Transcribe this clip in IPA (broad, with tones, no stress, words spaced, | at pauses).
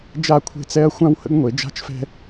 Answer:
d͡ʒa˦˨kʷʰe̤˦t͡sɛ˦ɐ̯ xʷã˦whə̰˦ɡ ŋʷe˨˦d͡ʒa̤˦t͡ʃfɛ̤˦